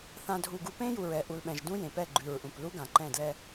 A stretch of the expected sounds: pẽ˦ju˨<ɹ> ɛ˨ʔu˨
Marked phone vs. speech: correct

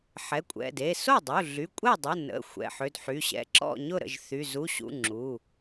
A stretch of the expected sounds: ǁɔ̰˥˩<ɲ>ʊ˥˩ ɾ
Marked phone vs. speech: correct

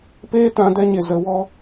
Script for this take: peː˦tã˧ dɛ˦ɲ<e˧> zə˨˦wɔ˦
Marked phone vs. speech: correct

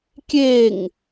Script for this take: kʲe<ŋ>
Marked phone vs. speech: correct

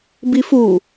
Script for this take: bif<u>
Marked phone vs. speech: correct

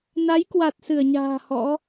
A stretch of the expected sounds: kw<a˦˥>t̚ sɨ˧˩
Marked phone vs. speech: incorrect: a˨˩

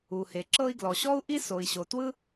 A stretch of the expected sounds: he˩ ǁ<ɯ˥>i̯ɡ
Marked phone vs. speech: incorrect: ɤ˥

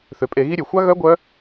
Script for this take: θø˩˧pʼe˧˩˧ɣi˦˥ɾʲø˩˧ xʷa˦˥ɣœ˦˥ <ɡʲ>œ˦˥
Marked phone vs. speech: incorrect: ɡʷ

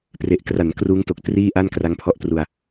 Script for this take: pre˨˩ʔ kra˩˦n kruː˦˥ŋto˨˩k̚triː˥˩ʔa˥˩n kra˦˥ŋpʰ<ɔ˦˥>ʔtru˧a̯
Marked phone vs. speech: correct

